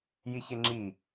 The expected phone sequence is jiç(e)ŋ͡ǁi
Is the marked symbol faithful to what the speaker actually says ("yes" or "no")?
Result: yes